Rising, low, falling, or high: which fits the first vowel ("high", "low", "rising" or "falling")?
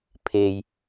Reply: low